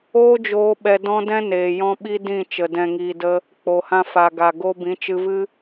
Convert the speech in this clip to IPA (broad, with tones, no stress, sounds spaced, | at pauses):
oː˦ d͡ʒ oː˧ ɓ ɛ˧ d ɔ̃˦ d ɛ̃˦ n eː˨ j ɔ̃˦ ɓ i˦ d ĩ˦˨ t͡ʃ ə˨ d ɛ̃˨ ŋ iː˨ d ə˧ | k͡p o˨ h ã˧ f a˨ ɡ a˨ ɡ o˦ b ĩ˨˦ t͡ʃ ɨ˧ v ɨ˦